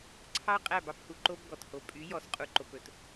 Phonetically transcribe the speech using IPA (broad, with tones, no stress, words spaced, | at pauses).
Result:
ǀʰɑ˦ qʼæ˦˨bɑ˦phu˨ǃo˦b ɡɔ˨tho˨ pʼy˨˦jɔ˨sqʼu˨ ǃo˨pɵ˨t